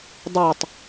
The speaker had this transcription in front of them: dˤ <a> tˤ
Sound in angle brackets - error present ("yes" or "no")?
no